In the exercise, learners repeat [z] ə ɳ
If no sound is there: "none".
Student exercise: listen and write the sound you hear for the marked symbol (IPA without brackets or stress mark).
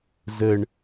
z